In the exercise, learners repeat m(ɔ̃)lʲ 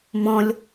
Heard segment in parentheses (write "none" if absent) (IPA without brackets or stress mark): ɔ̃